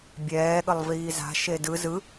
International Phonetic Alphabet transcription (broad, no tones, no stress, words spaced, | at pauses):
bʲɛːɠəlˠviː za̤ʃe dɯ zɯ